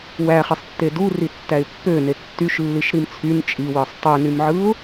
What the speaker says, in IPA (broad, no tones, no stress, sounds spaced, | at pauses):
w æ χ i sˤ tː e d u r i tː æ ɪ̯ pː ø n e tː y ʃ lː i ʃ ɾ i m t͡sʰ y n t͡ʃʼ i w ɯ sˤ tˤ ø n y m ʕ ɯ ʊ̯